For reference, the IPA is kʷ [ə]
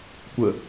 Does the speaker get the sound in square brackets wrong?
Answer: no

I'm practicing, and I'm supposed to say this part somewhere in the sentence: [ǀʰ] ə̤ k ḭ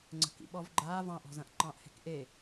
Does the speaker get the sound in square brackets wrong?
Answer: yes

